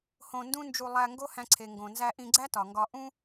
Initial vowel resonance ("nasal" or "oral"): nasal